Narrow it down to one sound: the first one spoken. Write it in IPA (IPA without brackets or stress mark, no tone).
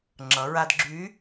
ŋ͡ǁ